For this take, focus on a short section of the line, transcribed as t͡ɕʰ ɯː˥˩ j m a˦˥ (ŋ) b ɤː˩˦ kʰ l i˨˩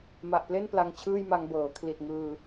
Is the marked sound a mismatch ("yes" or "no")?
no